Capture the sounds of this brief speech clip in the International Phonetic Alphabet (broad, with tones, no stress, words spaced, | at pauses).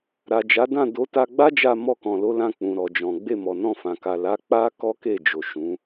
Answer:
ɾa˨ d͡ʒa˨˦dã˦˨do˨˦ ta˧ɡ͡ba˦d͡ʒa˧ mɔ˧kɔ̃˨lo˨˦lã˧ k͡pũ˨ ɾɔ˨d͡ʒɔ̃˨ ɡ͡be˧mɔ˨nɔ̃˧fã˨ ka˨la˨˦ k͡pa˦ kɔ˦ke˦˨d͡ʒo˨ ʃũ˨˦